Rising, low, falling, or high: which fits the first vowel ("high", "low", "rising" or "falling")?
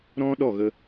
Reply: high